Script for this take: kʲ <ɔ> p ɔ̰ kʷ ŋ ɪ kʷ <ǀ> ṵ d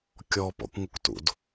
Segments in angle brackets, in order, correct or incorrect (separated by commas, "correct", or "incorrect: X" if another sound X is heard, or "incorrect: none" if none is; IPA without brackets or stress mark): correct, incorrect: t